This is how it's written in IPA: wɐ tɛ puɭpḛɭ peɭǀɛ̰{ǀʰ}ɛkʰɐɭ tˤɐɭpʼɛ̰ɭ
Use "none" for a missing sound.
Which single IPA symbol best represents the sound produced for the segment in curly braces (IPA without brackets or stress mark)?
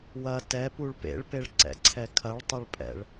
ǀʰ